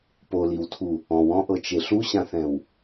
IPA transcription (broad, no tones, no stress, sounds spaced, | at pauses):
p o l i w tʰ u | ɔ̃ w ɔ̃ ʔ ɤ t͡ʃ e ɬ u ɕ ã θ ɛ̃ w